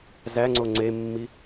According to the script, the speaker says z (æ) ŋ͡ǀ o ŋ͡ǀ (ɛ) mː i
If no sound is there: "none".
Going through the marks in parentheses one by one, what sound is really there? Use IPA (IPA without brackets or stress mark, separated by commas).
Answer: æ, e